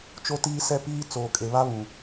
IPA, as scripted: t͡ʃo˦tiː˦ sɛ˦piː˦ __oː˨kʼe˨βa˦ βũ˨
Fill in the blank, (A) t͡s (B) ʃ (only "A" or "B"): A